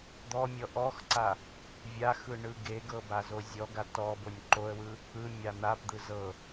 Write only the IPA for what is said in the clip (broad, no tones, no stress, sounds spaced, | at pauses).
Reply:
d̪ ɔ mʲ ɔ ʔ ɔ x ǀ a | vʲ a x ɯ ɳ ɯ ɡ e ɡ ɤ b a z o zʲ ɔ ɡ a t ɔ b o nʲ ǃ o ə̯ w ɯ | ɯ mʲ a n̪ a p d̪ ɯ z ɤ